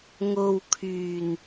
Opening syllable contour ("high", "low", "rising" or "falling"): low